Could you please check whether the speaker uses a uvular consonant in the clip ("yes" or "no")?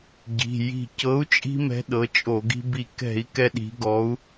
no